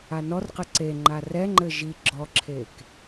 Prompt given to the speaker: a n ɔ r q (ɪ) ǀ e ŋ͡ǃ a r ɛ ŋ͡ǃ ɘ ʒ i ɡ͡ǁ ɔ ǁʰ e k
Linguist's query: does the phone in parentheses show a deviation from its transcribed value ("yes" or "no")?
yes